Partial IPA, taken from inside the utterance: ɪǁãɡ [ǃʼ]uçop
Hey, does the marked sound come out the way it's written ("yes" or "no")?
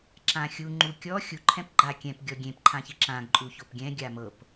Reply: yes